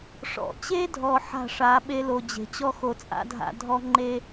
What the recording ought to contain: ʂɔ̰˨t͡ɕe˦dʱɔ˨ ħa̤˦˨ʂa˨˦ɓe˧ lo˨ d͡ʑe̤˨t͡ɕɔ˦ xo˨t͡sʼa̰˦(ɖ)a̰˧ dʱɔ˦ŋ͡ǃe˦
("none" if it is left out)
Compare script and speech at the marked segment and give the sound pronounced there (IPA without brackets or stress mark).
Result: dʱ